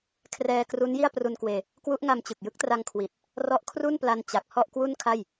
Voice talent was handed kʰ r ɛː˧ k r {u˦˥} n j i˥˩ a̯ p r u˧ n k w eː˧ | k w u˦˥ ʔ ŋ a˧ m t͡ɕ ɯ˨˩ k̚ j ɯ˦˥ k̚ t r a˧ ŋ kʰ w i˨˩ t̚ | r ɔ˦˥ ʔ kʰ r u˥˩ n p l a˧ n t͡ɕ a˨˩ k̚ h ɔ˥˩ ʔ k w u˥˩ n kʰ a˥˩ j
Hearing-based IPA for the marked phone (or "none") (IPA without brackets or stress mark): u˦˥